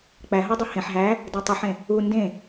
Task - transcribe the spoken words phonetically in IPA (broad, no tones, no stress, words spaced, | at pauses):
k͡pæɦodˤo hẽħ ɦæ | dætˤoħẽ | u ndẽ